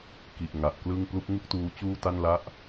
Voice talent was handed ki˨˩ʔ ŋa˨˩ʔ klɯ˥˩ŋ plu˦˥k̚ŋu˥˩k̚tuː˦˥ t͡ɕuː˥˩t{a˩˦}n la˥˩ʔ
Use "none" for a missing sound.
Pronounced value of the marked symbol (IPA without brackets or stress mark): a˥˩